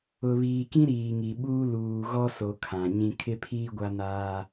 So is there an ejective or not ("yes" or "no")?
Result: no